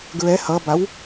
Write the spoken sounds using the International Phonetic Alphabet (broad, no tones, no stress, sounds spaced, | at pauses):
ɡ ɹ ɛ h ʌ b a w